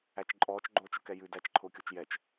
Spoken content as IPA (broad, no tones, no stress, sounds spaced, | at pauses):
æ t͡ʃ ǃʼ ɔː t͡ʃ ɡ͡ǃ oː t͡ʃ ʊ k ɛ j ʉ d æ t͡ʃ ǃʰ ʊː kʲ o t͡ʃ j ɛ t͡ʃ